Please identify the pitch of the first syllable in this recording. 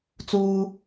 high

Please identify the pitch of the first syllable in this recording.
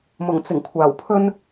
low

